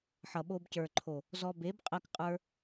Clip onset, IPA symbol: ħ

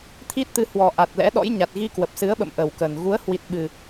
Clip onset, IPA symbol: t̪ʰ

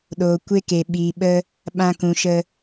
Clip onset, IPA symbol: ɗ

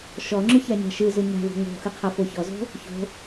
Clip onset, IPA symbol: ʃ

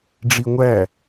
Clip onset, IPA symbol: ɖ͡ʐ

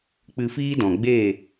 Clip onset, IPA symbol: k͡p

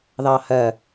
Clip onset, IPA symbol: ð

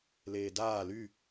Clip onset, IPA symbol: l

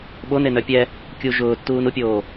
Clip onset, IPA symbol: ɓ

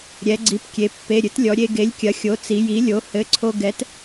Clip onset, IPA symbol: ɾʲ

